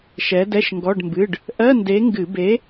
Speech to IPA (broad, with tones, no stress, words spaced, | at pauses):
ʃɛ˨˥dɛ˧˥˧ʃŋɡɔ˧˥˧ɖmbɨ˧˥˧ɖ | ʔɜ˧˥˧nde˨˥ŋɡɨ˧˩˧ be˨˥